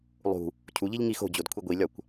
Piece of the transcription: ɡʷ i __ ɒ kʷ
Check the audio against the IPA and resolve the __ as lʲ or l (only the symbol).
lʲ